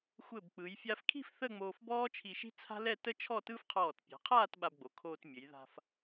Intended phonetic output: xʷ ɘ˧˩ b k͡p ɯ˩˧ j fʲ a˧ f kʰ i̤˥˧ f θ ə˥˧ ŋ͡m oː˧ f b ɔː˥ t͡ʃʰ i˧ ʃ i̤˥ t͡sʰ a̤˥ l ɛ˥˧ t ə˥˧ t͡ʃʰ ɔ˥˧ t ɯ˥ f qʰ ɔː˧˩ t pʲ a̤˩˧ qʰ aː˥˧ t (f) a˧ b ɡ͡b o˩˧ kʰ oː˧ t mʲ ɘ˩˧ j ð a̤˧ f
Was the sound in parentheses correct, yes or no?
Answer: no